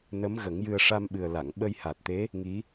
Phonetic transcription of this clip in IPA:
n ə˧˥ m ɣ ə˨˩˦ ŋ j ɨ˧ ə̯ ʂ a˧ m ɓ ɨ˨˩ ə̯ l a˨˩˨ ŋ ɓ ə˧ j h a˨˩ t̚ t̪ e˧˥ | ŋ i˧˥

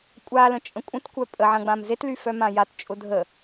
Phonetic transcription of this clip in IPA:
kʷʼ a l ə̃ t͡ʃʼ ə̃ kʷʼ ə̃ t kʷ œ pʼ ə ʕ ɐ̃ ɡ͡b ã m z e t l y f œ m ã j a t t͡ʃʼ ʊ dʱ ə

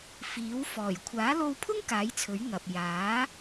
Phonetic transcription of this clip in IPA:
f iː˨˥ w f ɔː˨˩ j kʷʰ aː˨˥ l o˧ w pʰ ʊ˥ ŋ k aː˨˥ j t͡sʰ ɵ˨˥ ɥ ŋ ɐ˨ p̚ j aː˨˥

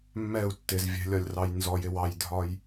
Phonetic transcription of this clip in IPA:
mː ɛ u̯ tː ɪ z vʲ ɛ̤ lʲ ɒ lʲ r ɑ j n z ɔ j ɪ w ɑ j dʱ ɒ j

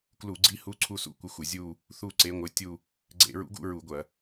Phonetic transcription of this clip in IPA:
k l u˧˩˧ ɡ͡ǀ i˧˥ h u˧˥ ǀʰ u˥˧ s ṵ˥˧ kʷ ɪ˧˥ xʷ ɪ˧˩˧ zʲ u˥˧ | θ u˥˧ ǀ e˧˥ ŋʷ ɪ˧˥ tʲ u˥˧ | ɡ͡ǀ ḛ˧˩˧ ɹ ṵ˧˥ ɡ ṵ˥˧ ɹ u˧˩˧ ɡʷ ɐ˧˩˧

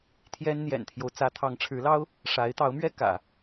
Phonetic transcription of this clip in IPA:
t̪ʰ j ɛ˥ n n̪ j ɛ̰˨˩ n t̪ʰ j o˦ ʊ̯ t͡s ä˧˥ t̪ʰ ɑ˧˥ ŋ ʈ͡ʂʰ ɻ̩˧˥ l ɑ˥ ʊ̯ | ʂ a˧˥ ɪ̯ t̪ ɑ˧˥ ʊ̯ m ɥ ɛ˥ k ä̰˨˩˦

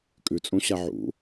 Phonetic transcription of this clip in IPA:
kʼ ʉ t͡sʼ ũ ɕ a ʕ ṵ

